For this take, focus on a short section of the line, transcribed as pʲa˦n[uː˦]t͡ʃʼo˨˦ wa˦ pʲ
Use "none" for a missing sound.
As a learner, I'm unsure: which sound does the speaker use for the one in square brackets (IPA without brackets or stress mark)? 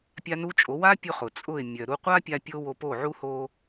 u˦